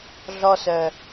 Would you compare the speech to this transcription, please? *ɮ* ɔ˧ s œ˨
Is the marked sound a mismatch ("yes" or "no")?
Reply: no